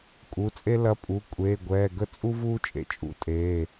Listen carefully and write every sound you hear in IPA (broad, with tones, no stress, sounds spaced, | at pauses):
kʼ u˩˧˩ t͡sʼ e˥ l ɐ˧˥ pʼ u˩˧˩ kʷʼ eː˩˧˩ ɡʷ ɛː˩˧˩ ɡ ə˥ t͡sʼ u˥ v uː˥ t͡ʃʼ ḛ˧˥ t͡ʃʼ ṵ˧˥ tʼ eː˩˧˩